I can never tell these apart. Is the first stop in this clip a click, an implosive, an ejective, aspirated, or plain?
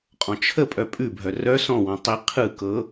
ejective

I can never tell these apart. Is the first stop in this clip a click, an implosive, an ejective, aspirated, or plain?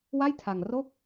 aspirated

